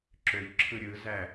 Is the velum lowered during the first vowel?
no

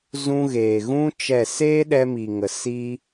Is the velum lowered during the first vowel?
yes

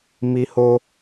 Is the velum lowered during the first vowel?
no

